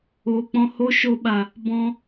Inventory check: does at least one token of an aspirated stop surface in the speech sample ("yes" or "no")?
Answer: no